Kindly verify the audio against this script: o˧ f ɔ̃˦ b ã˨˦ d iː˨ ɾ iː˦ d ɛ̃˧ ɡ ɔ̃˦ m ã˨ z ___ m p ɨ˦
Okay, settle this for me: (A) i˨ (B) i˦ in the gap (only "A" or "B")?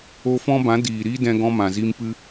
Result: B